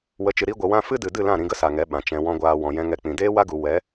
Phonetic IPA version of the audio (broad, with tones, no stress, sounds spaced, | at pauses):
w ə˨˦ t͡ʃ ɨ˨ ɾ i˧ ɡʷ ə˨ w ã˧ f ɨ˦ d ɨ˨ d ɨ˦˨ l ã˦˨ ɾ ĩ˧ ɡ ə˦ s a˨ ŋ ɛ˨˦ ɓ ã˨ t͡ʃ ɛ̃˧ w ɔ̃˧ ɡʷ aː˧ w ɔ̃˨ j ɛ̃˧ ŋ ɛ˧ k͡p ĩ˨ d eː˦ w a˦ ɡ u˨ w ɛ˨˦